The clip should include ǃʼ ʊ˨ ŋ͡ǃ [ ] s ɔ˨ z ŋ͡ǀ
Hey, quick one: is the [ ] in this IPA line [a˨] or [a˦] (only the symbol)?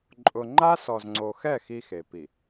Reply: a˦